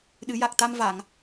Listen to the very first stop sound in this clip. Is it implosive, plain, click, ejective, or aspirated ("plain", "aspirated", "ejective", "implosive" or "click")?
implosive